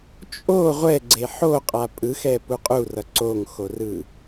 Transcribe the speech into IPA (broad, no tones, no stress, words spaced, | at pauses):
t͡ʃʼo ʁʷɛɡ͡ǀe ħoqʼa pʼɯxɛpu qʼurʌ ǀoŋxorɯ